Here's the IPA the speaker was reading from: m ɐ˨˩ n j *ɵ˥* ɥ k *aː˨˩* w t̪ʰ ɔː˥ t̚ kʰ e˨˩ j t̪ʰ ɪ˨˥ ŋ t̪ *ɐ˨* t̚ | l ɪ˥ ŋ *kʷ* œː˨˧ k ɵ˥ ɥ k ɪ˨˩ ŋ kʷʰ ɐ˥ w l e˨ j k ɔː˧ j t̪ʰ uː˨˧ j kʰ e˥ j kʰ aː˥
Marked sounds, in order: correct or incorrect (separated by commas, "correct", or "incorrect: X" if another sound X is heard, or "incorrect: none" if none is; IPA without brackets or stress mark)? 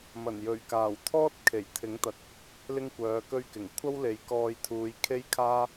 incorrect: ɵ˨˩, correct, correct, correct